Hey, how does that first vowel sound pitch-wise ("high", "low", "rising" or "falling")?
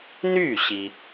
falling